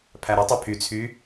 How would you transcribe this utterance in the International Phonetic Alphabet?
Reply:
pʰ æ ɾ ɯ tˤ ø pʰ y t͡sʰ y

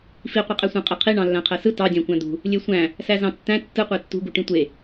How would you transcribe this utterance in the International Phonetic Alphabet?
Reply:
f i qʷ i qʼ æ sʷ æ̃ qʼ e qʰ i ɳ ɑ̃ lː æ̃ qʰ æ s ɯ t ɑ dʲ æ̃ kʷ æ̃ d̪ ṳ | lʲ e sʷ æ̃ | s æ z ɑ̃ tː æ̃ tː ɯ qʷ e tː ṳ ɡ u ʈ ĩ tʷ e

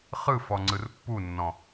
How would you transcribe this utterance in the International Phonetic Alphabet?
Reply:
χ ɯ f ɔ ŋ͡ǀ ɯ r pː u nː ɔ̃

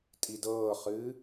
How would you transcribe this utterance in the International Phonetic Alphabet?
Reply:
tʼ i d ɤː χ ɨː

